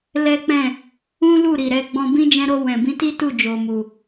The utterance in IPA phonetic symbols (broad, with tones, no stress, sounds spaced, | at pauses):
l ɛ˦ k͡p ɛ̃˦˨ | ũ˦ l u˦˨ ɾ i˨ ɾ ɛ˧ ɡ͡b ɔ̃˧ b ĩ˦ d͡ʒ ɛ̃˧ ɾ o˧ w ɛ̃˨ b ĩ˧ t i˦ t u˦˨ d͡ʒ o˨ m u˨